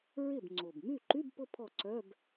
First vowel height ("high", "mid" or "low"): high